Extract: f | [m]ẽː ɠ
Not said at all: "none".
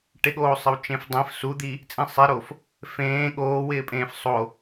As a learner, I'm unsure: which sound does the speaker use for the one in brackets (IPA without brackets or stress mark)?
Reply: f